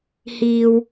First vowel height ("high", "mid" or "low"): high